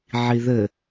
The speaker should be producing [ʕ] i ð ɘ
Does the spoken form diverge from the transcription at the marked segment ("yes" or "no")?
no